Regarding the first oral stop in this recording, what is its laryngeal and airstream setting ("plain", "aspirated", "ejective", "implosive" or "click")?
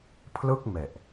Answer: aspirated